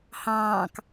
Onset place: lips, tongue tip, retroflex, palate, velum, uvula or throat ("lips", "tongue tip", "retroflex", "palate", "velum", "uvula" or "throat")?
throat